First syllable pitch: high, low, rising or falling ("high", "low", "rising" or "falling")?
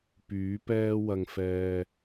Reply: rising